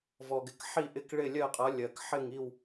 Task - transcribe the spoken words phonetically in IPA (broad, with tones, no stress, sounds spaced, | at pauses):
v ɔ˨ ɡ ɪ˨ k ħ i˥˨ ʔ ɪ˥˨ k ɭ ɪ˥˨ lʲ ɜ˥˨ qʼ ʌ˨˥ lʲ ɜ˨ k ħ ɪ˥˨ ŋ i˥˨ w